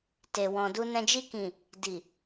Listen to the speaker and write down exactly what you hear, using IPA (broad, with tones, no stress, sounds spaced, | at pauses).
t e˨ w ɔ̃˨ d u˧ n ɛ̃˧ d͡ʒ i˧ k ĩ˨ | d i˨